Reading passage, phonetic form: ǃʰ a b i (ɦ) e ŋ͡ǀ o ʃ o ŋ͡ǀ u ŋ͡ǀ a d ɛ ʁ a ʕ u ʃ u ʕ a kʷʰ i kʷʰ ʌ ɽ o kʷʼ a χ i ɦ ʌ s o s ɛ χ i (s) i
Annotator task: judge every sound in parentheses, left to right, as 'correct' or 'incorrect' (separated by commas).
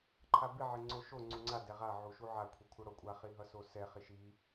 incorrect, incorrect